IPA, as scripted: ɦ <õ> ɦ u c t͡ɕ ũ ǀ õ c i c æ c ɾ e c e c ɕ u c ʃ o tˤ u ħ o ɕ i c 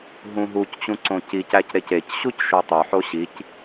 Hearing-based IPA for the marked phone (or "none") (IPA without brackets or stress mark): ũ